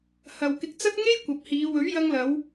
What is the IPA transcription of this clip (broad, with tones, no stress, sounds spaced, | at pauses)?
h ɐ˨ w k ɪ˧ k̚ t͡s ɐ˥ t̚ ŋ e˥ j kʷ ɐ˨˥ p̚ h iː˨˧ w ɵ˨˥ ɥ j ɐ˧ ŋ l ɐ˨˧ w